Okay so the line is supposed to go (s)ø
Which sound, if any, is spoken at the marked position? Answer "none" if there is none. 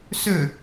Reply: s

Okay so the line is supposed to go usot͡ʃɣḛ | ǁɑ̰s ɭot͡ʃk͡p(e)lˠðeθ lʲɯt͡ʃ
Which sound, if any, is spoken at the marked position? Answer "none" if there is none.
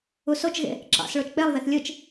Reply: e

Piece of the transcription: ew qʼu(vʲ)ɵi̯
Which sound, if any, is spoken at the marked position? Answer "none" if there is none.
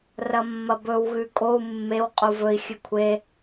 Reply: v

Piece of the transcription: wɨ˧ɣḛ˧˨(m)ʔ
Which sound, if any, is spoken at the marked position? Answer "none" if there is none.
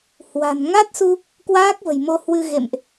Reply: m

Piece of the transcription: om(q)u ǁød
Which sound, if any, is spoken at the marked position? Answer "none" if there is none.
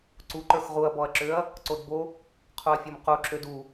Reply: q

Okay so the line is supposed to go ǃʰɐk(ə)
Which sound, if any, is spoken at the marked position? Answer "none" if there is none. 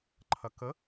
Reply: ə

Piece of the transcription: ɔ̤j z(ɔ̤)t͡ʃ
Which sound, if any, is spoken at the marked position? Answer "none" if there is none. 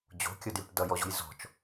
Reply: ɔ̤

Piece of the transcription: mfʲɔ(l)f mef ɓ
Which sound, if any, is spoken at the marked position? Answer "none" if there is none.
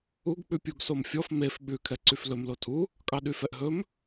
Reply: none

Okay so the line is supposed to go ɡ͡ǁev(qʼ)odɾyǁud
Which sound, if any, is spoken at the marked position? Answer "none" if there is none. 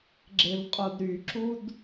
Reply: qʼ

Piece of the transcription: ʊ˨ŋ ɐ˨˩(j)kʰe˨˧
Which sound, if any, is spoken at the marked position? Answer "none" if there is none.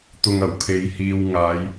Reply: w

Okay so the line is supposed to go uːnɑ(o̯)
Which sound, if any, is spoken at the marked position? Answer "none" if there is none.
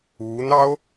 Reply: o̯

